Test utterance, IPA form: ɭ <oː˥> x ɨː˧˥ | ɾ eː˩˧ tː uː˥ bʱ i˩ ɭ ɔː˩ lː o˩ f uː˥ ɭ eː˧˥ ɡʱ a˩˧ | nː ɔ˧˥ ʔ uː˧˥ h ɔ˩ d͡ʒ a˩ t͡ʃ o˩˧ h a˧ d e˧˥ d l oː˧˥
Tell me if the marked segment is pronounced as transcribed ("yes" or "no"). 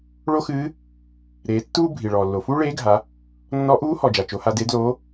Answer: no